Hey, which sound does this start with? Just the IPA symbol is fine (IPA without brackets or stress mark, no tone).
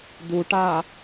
d̪